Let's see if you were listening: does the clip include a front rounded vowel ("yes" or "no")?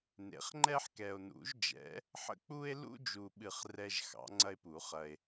no